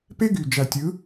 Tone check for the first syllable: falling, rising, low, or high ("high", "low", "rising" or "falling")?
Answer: high